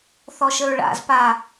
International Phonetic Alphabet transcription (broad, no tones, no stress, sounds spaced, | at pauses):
θ ɔ ʃ ə ɹ ɭ a̰ z p a